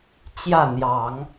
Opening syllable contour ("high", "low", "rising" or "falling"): falling